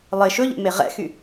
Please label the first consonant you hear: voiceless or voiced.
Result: voiced